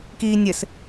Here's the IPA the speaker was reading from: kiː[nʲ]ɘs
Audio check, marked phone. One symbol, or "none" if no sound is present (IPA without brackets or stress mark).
nʲ